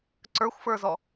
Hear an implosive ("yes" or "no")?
no